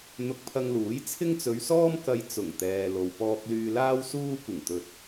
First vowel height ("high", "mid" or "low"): high